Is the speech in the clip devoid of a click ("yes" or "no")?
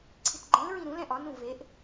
no